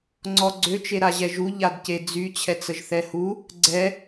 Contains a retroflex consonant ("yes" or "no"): no